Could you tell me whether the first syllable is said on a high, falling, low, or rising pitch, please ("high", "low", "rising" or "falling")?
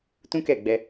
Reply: high